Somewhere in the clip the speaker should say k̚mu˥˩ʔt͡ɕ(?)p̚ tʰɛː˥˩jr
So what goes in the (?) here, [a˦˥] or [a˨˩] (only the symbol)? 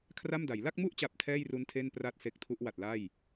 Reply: a˨˩